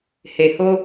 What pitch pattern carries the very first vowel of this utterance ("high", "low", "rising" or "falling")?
low